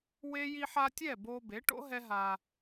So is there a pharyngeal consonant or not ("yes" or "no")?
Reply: yes